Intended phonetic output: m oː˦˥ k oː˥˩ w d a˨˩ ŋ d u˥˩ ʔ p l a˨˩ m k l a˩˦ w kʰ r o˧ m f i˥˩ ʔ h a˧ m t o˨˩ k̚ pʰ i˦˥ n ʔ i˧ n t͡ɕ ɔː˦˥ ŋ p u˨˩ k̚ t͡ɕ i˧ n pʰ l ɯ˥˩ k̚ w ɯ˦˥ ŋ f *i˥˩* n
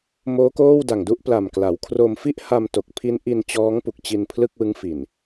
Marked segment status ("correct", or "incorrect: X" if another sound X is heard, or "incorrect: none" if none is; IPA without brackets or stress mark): incorrect: i˨˩